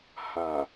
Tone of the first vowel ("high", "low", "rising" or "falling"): low